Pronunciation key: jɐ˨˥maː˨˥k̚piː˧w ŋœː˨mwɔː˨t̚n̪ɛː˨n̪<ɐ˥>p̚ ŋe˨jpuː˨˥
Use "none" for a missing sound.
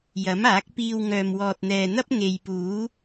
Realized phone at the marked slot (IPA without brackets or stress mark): ɐ˥